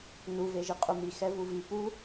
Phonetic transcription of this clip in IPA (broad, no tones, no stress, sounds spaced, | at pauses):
n u v e ʒ i qʼ u m i x ɛ v u v i p u